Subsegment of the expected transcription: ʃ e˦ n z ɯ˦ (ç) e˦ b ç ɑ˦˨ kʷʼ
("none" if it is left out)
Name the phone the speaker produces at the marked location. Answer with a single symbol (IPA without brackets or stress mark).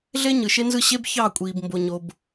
ɕ